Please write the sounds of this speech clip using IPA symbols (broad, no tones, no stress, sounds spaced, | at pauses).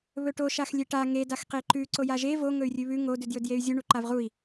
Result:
β ɵ ʈ o ʃ a x lʲ e ʈ a ŋ e d a x q e ǃ ʉ ǀ o j a ʒ e v o ŋ ɵ y̯ rʲ ʉ β ʉ ŋ o d ʉ d j ɵ d j e y̯ zʲ u ɳ u ǃ a v ʁ u i̯